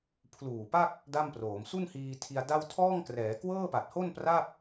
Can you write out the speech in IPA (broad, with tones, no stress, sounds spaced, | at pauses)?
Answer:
pʰ l uː˨˩ p a˥˩ k̚ | d a˥˩ m p r oː˩˦ m s u˥˩ n h iː˧ tʰ i˧ a̯ d a˥˩ w tʰ ɔː˥˩ ŋ k r ɛː˩˦ k w ɤː˥˩ p a˨˩ t̚ h o˥˩ n p r a˥˩ p̚